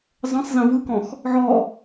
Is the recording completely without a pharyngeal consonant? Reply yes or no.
no